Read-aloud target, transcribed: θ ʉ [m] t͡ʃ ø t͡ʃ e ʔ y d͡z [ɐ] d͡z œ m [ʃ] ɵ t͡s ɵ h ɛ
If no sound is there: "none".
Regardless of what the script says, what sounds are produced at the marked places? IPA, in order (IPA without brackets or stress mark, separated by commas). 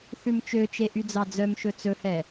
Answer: m, ɑ, ʃ